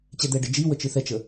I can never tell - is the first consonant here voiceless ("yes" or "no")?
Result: yes